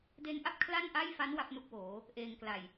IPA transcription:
de˦˥nʔa˥˩p̚ kʰla˥˩nʔa˥˩jfa˦˥n wa˥˩p̚nu˥˩k̚woː˩˦ | ʔeː˧ŋ kla˨˩j

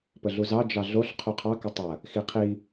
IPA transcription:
pəɮuzɑ d͡ʒɑɮoɬ qʰuqʰɑ kətˤɐ | xiqʰi

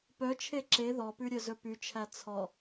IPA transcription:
pœt͡ʃʰe ǁe ðɔpʉ ɾʲœzɵpyt͡ʃʰæ t͡sʰɔ

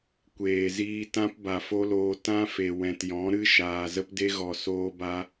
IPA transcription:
kʷeː˨ziː˧tã˦p ba˨fo˦loː˧ tã˦fe˨ wɛ̃˨tjɔ̃˨˦ɾɨ˦ ʃaː˨zə˦pde˦ɣɔ˨ soː˧ba˧

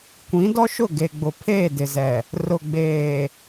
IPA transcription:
kʷĩ˨˦ dɔ˦ʃʊ˦˨ɡe˨ɡ͡bʊ˨ pʰeː˦˨dɪ˨zɛ˨ | rʊ˨ɡ͡beː˨

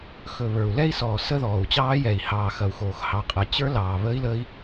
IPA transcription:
xɵ˨˩ βə˞˨˩u̯lɛ˦˥i̯sɔː˨˩ sə˦˥ðɔː˨˩u̯t͡ɕɑː˦˥ jɛ˨˩i̯hɑː˨˩xɐ˨˩u̯xoː˨˩x hɑ˨˩qʼə˨˩t͡ɕə˞˦˥ lɑː˨˩βə˦˥i̯ lə˦˥i̯

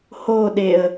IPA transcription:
hoɗeə̯

